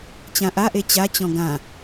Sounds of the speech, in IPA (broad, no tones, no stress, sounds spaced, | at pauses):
t͡ɕ ã ʔ a ʔ e t͡ɕ a t͡ɕ ɔ̃ ɡ ã